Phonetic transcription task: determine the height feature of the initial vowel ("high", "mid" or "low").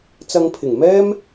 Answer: low